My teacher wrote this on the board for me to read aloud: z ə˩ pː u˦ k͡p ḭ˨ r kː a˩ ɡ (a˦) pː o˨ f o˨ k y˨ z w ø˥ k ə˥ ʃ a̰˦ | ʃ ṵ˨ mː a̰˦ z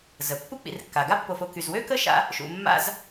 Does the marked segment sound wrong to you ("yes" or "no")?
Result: no